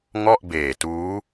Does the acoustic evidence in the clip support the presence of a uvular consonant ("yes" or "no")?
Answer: no